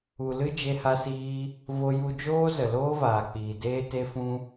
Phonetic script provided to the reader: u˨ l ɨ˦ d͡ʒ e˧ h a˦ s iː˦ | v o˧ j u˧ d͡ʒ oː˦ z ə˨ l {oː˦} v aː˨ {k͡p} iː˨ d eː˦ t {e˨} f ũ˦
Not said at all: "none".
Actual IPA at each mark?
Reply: oː˦, k͡p, e˦

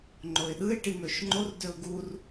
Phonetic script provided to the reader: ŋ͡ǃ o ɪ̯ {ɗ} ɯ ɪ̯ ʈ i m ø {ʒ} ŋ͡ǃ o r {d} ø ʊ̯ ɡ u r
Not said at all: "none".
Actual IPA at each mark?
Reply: ɗ, ʃ, d

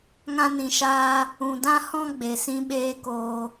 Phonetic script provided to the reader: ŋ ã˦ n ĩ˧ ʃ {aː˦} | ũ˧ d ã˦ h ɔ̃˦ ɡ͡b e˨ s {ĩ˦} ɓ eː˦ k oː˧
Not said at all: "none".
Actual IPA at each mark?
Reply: aː˦, ĩ˦

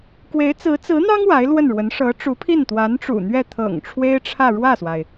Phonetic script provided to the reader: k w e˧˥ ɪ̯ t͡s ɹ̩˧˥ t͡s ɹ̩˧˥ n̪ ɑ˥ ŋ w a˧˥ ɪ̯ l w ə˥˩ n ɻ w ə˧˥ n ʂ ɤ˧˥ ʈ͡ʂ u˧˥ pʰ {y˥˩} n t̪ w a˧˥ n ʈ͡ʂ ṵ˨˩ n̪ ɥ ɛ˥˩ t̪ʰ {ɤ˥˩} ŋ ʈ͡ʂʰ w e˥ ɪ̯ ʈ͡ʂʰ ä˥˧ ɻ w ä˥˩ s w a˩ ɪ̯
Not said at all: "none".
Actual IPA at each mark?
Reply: i˥˩, ɤ̰˨˩

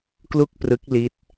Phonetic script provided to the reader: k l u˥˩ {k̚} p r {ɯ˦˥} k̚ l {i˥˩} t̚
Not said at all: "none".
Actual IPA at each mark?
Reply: k̚, ɯ˦˥, i˦˥

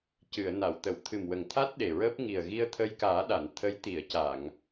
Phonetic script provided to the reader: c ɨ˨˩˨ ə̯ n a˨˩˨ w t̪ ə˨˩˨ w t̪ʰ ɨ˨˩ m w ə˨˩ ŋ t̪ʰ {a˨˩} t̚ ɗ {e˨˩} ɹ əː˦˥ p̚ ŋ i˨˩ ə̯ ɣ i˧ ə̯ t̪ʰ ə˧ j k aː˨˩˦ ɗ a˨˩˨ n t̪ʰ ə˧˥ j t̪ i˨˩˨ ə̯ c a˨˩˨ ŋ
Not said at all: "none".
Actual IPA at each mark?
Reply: a˦˥, e˨˩

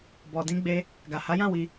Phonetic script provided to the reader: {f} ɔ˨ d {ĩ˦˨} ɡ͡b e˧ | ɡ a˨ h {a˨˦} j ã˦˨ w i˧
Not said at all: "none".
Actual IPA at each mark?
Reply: b, ĩ˧, a˨˦

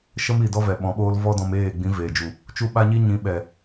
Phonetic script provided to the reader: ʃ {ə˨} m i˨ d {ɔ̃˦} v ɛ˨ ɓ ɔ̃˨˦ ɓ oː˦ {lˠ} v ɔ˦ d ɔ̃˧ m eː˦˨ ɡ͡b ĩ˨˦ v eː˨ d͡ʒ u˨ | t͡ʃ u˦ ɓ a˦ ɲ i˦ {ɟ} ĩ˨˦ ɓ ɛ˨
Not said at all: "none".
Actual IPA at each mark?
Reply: ə˦, ɔ˦, l, ɲ

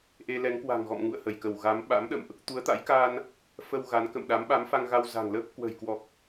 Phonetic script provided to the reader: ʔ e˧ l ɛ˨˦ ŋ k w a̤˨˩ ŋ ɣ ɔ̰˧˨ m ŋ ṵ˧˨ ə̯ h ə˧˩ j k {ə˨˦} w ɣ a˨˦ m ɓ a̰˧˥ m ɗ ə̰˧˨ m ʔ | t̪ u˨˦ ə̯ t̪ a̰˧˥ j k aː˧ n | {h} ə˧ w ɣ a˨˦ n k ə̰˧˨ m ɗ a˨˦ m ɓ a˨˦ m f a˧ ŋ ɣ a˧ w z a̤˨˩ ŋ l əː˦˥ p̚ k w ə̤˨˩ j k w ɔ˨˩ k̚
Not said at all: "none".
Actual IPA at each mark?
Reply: ə˧˩, f

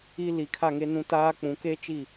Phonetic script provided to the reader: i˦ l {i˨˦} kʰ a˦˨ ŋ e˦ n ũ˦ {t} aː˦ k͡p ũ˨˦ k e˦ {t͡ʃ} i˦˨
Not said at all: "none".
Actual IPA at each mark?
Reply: i˨˦, t, t͡ʃ

